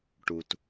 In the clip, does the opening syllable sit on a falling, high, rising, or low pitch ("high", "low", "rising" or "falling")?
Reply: low